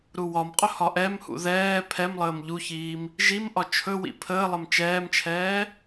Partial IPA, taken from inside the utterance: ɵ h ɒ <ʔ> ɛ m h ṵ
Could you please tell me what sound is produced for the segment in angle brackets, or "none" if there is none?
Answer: ʔ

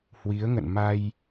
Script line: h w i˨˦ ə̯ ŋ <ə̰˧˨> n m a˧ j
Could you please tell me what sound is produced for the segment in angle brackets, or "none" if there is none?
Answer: ə̰˧˨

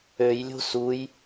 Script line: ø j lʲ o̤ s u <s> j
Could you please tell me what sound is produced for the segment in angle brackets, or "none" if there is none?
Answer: none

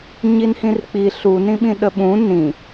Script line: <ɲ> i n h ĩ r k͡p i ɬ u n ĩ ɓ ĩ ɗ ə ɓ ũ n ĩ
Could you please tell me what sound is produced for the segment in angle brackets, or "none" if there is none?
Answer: ɲ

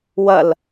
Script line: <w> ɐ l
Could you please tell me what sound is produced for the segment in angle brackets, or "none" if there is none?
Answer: w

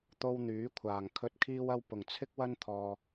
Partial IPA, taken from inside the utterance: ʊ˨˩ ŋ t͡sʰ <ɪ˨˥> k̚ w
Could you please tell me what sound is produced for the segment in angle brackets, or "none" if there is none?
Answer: ɪ˥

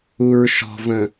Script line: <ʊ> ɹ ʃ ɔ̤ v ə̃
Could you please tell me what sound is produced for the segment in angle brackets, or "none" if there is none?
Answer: u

